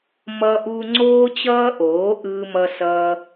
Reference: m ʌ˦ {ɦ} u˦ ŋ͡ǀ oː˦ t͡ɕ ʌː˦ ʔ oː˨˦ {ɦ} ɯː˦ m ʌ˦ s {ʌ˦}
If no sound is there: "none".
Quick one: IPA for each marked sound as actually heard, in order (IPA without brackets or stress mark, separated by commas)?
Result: ʔ, ʔ, ʌː˦